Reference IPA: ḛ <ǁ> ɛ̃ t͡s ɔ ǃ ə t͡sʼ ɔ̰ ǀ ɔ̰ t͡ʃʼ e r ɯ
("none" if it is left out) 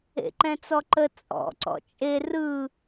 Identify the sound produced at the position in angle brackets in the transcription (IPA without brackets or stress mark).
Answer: ǃ